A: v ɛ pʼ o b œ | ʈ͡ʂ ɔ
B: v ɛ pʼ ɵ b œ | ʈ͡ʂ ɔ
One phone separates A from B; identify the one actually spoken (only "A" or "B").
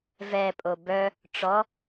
A